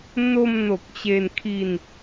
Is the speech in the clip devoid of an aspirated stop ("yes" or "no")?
no